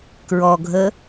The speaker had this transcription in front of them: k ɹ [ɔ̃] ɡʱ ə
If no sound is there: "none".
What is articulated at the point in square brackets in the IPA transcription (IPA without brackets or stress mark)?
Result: ɔ